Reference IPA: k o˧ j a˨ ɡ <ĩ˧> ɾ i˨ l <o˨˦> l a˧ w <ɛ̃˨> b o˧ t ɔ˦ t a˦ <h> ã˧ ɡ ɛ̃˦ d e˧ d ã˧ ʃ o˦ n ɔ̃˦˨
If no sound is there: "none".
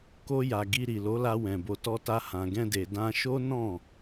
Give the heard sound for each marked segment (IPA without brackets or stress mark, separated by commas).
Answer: i˧, o˨˦, ɛ̃˨, h